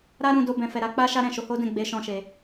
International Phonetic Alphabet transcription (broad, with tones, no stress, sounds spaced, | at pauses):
ɾ a˦ ɾ ũ˧ d o˧ b ɛ̃˨ f ɛ˨ ɾ a˧ k͡p a˦ ʃ a˦ ɾ ɛ̃˦˨ ʃ o˨˦ h o˦ d ɛ̃˦˨ ɡ͡b e˧ ʃ ɔ̃˦ ʃ e˧